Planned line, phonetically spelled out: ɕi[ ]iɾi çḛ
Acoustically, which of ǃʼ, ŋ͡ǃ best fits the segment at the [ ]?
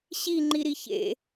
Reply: ŋ͡ǃ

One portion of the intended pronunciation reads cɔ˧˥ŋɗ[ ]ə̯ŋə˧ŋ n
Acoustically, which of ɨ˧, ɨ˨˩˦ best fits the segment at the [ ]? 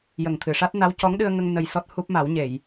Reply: ɨ˧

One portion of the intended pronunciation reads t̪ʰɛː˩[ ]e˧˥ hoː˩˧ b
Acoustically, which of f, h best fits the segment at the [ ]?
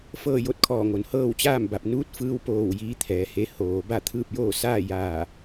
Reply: h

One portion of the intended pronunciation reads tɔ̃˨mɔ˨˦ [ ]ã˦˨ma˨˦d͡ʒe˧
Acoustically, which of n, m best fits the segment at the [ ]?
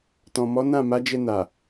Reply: n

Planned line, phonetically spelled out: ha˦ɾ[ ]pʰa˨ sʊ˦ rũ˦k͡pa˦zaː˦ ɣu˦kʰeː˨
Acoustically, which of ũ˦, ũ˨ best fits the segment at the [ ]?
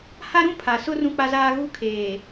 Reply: ũ˦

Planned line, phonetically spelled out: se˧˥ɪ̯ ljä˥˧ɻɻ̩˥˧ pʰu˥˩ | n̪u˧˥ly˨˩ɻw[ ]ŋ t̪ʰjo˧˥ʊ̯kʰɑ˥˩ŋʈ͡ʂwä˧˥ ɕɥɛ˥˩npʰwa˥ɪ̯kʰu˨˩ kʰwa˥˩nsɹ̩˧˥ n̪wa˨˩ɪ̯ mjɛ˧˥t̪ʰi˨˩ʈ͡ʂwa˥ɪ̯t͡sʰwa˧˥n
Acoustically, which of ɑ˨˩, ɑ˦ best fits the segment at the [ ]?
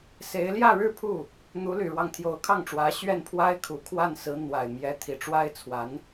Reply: ɑ˦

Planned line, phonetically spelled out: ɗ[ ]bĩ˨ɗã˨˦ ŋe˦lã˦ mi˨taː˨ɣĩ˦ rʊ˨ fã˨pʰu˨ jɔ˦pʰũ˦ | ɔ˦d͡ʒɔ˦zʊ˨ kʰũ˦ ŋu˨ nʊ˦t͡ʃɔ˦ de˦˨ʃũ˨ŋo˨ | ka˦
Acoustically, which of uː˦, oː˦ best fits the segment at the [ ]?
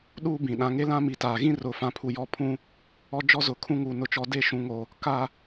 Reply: uː˦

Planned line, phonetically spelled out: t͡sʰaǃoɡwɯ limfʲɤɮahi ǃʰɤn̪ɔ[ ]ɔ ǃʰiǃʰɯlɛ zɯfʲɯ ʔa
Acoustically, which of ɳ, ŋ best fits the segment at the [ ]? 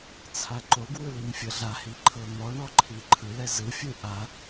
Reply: ɳ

